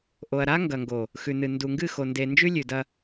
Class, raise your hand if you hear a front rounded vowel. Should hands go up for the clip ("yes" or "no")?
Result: no